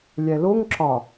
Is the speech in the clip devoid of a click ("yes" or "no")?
no